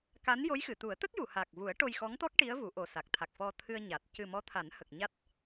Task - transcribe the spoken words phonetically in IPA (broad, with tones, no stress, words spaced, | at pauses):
ka˧˥njo˧˥jxɨ˨˩˨ t̪u˨˩˦ə̯t̪ə˦˥k̚ ju˨˩˨ha˨˩k̚vu˨˩˦ə̯ ʈo˧jxɔ˧˥ŋt̪ɔ˦˥k̚ ʈi˧˥ə̯ vu˨˩˦ʔo˨˩sa˨˩k̚ t̪ʰa˨˩k̚fɔ˧t̪ʰɨ˧ə̯ ɲa˨˩t̚ cɨ˨˩ mɔ˧˥t̪ʰa˨˩˦nhə˨˩k̚ ɲa˦˥t̚